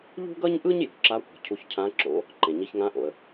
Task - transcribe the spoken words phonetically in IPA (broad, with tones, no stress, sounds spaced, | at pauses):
ʎ ṳ˥ ɡ ʌ˥ ɲ ʔ ɯ˥ ɲ j o̤˩ ǁ a˧˥ kʷ e̤˩ cʰ u˧ ç cʰ ã˧˥ ǁ o̰˧˥ | ǃ ẽ˩ ɲ i˧ ç ŋ ã˧˥ ʔ o̰˩ ə̯